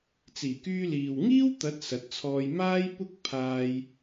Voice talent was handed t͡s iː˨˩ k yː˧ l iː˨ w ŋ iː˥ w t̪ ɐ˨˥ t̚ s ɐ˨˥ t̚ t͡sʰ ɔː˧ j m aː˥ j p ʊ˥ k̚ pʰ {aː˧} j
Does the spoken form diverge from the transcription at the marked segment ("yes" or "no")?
no